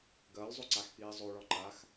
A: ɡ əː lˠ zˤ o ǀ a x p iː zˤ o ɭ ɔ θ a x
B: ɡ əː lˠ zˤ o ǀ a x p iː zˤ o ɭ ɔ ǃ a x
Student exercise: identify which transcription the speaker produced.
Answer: B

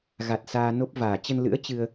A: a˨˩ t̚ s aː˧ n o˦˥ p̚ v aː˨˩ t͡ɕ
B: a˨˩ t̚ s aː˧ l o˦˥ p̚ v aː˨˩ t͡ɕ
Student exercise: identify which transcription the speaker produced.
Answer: A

